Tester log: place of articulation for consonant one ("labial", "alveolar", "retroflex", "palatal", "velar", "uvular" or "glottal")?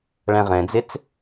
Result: retroflex